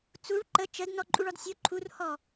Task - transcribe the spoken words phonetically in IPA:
t͡s u ɭ ǃ ə t͡ʃ ə d n ɔ ǃʼ u ɭ ɔ d sʲ o ǃʰ u r h ɔ

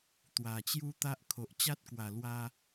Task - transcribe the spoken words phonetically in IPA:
t̪ w a˨˩ t͡ɕ j u˦ t̪ a˦ ʔ kʰ o˨ ʔ t͡ɕ a˦ t̚ k w a˨˩ l w a˧

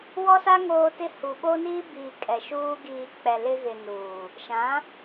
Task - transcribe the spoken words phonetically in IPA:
w ɔ˦ s a˦ ŋ oː˦ t ɪ˦ h u˨ ɓ o˦ n iː˦ b iː˨ kʼ ɛ˨ ʃ uː˦ ɡ iː˨ k͡p ɛ˨ l ɪ˦ ɣ ɪ˨ n uː˨ | ʃ ã˨˦

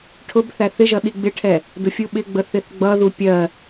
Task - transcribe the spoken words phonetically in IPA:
ʈʰ ʊ b θ æ θ ɪ ʒ ʌ ɗ i ɡ͡b ɪ ʈʰ ɛ | d ʊ fʲ u ɓ ɪ ɡ͡b ə θ ɪ θ ɡ͡b ʌ ð u pʲ ɜ

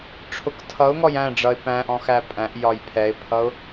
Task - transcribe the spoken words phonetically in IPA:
ʈ͡ʂʰ ʊ k tʰ ʌ ʊ̯ ŋ ɔ j æ̃ ɖ͡ʐ ʌ ɪ̯ p æ̃ ʔ ɔ̃ x æ pʼ æ̃ ʔ j ɒ j pʰ ɛ ɪ̯ pʰ ʌ ʊ̯

